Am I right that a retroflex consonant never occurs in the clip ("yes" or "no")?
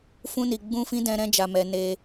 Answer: yes